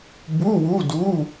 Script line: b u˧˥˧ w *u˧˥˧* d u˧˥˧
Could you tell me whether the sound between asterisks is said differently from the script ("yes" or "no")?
no